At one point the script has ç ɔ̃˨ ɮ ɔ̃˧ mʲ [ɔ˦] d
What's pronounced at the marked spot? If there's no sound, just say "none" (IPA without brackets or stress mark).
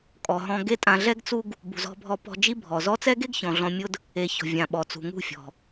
ʊ˦